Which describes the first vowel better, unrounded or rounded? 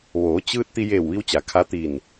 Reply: rounded